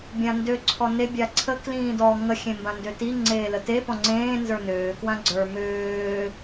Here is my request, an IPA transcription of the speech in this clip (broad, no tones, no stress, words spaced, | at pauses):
bʲãndø ǀʰɔne bʲaǀʰə klĩːdɔ ŋə xʲẽmbãndøti ŋ͡ǀeːləte pɔ̃ŋ͡ǀẽː nzə˞nøː kwãɡ͡ǀə˞ møː